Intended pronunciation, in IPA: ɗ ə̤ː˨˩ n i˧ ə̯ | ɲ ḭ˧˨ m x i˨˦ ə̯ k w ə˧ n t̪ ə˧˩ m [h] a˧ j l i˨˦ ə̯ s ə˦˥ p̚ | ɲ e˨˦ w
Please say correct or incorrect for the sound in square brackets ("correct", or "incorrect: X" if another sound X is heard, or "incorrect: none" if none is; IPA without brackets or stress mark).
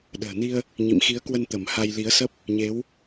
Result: correct